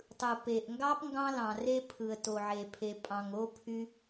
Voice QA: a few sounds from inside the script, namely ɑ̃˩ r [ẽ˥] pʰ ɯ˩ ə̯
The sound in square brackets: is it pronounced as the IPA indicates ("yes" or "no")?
no